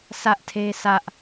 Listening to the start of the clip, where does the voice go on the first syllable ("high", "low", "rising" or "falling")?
high